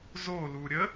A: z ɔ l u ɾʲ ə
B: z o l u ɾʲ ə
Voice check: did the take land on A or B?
B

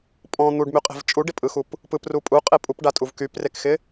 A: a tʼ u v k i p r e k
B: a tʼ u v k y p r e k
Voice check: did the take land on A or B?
B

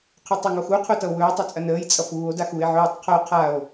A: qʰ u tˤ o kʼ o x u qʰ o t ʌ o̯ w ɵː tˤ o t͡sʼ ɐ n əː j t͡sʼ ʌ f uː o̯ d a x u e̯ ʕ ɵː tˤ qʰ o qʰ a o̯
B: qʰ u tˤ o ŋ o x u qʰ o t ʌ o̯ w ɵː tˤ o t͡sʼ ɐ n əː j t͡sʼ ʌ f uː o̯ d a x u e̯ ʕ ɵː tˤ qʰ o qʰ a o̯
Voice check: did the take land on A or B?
B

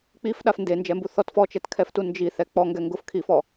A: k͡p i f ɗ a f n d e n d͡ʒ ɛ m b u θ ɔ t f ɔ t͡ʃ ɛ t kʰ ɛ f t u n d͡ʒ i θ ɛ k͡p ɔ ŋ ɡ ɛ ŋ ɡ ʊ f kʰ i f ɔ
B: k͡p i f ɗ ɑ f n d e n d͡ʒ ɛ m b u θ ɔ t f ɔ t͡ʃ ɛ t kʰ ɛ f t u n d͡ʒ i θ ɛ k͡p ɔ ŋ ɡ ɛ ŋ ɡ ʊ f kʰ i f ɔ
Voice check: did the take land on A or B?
A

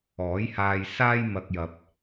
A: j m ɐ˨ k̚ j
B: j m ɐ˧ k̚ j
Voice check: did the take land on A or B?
B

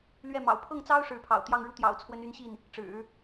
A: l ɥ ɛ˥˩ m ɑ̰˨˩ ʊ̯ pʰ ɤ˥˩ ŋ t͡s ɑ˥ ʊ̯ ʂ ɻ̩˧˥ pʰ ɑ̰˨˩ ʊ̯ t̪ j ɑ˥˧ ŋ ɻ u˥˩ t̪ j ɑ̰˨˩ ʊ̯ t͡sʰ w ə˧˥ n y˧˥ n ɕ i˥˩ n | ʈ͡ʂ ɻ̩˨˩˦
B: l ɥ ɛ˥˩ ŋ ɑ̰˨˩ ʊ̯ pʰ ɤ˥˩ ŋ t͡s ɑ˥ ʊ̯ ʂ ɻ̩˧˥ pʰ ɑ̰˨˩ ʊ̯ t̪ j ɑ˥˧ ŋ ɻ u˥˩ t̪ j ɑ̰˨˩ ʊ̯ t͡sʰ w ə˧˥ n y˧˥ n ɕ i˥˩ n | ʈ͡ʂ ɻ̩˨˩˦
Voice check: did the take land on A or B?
A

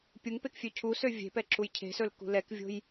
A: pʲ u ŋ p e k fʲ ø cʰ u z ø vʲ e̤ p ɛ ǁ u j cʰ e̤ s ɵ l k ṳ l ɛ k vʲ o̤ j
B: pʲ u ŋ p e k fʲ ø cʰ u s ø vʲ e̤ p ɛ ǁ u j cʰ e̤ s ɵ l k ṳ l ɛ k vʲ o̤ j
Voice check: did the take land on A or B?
B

